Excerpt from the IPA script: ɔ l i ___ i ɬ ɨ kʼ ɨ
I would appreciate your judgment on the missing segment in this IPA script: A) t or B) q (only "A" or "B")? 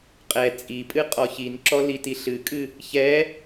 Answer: A